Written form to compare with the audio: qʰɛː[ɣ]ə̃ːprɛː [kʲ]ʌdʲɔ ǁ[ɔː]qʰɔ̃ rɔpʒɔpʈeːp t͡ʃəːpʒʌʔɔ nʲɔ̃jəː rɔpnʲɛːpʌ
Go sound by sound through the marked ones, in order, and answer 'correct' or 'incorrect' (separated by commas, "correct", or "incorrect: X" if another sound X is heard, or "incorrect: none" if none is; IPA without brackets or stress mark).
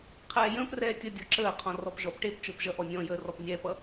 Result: incorrect: j, incorrect: tʲ, incorrect: əː